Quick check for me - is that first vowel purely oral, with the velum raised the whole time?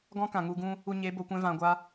no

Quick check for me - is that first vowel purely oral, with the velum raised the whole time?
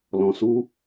no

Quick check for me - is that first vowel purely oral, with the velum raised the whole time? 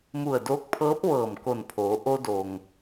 yes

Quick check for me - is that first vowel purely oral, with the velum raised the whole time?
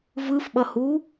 yes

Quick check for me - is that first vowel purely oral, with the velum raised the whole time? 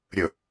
yes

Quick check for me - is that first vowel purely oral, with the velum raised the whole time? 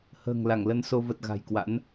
yes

